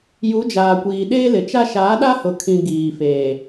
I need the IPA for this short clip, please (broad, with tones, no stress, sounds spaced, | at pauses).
j u˨˦ d͡ʒ aː˨ kʷ iː˨ ɗ eː˦ l ɪ˨ t͡ʃ a˦ ʃ aː˨˦ ɗ a˦ h ʊ˨ kʰ ĩ˨ ɡ iː˨ f eː˨